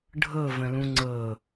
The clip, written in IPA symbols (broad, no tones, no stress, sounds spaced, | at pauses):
ɖʱ ɤ v ə̃ l ũ ŋ͡ǀ ɤ